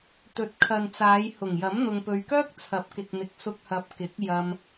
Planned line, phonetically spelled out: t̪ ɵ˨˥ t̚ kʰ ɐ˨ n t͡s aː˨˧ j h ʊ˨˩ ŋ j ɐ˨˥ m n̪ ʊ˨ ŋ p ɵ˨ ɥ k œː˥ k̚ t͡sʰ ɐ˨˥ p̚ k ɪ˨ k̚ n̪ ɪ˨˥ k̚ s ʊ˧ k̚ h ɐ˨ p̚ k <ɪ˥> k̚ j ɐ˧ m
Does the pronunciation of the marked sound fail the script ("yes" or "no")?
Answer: yes